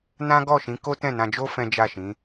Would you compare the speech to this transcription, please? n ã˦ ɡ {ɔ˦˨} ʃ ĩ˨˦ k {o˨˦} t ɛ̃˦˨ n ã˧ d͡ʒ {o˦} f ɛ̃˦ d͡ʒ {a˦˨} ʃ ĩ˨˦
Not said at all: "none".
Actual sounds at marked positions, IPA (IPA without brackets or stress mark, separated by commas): ɔ˦˨, o˦, o˦, a˦˨